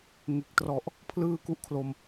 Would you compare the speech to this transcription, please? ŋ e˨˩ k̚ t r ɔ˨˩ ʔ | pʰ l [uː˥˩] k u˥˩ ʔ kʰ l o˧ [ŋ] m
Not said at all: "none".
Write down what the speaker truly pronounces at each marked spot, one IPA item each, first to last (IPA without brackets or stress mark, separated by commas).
ɯː˥˩, none